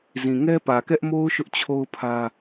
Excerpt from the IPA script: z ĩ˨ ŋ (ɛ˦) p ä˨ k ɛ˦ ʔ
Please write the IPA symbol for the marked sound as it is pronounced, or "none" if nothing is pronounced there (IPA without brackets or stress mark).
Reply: ɛ˦